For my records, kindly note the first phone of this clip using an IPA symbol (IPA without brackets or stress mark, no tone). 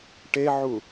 ʈ